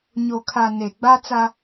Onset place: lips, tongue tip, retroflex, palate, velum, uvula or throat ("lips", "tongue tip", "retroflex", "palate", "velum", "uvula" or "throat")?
palate